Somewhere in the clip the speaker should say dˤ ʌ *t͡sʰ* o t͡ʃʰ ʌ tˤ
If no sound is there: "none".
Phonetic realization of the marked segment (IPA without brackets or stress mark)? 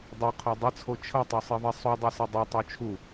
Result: t͡sʰ